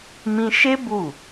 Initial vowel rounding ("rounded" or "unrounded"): unrounded